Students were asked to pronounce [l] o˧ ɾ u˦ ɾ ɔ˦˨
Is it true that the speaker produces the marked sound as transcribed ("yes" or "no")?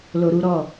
yes